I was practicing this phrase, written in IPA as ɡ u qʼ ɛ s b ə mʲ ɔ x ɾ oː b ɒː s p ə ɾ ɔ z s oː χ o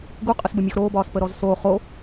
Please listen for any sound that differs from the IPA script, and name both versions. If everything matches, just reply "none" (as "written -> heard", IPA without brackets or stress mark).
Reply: ɛ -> ə